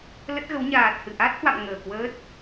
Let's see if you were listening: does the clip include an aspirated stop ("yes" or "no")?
no